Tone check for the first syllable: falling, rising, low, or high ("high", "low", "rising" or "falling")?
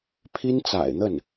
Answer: high